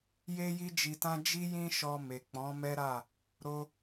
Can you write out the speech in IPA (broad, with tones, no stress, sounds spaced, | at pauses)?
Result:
j e˦ j i˦ d͡ʒ i˧ t ã˦ d͡ʒ i˦ j ĩ˦ ʃ ɔ˧ m e˨ k͡p ɔ̃˨˦ m ɛ˦ ɾ a˦˨ | ɾ o˦